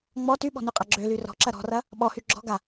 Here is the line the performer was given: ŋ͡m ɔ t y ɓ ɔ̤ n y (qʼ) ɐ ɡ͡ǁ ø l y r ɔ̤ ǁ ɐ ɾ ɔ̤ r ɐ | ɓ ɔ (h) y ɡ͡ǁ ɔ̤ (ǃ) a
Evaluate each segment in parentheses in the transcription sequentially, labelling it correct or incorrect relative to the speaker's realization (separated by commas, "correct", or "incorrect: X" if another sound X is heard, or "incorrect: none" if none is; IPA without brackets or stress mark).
correct, correct, incorrect: ɡ